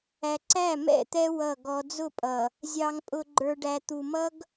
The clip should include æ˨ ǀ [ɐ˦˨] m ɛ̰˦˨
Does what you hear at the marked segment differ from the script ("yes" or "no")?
yes